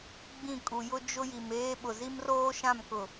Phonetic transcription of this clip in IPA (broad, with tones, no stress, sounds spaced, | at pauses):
ɡ͡b ĩ˦˨ kʼ u˨ j ʊ˦ d͡ʒ ʊ˦ j i˨ m eː˦ ɓ ʊ˨ z i˦ m r oː˦ ʃ ã˦˨ m k ʊ˨